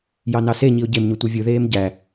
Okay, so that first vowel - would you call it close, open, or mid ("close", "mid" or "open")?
open